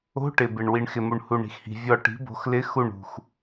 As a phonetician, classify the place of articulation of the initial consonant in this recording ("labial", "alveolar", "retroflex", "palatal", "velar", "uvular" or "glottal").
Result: retroflex